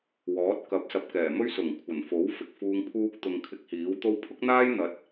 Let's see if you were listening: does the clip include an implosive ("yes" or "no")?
no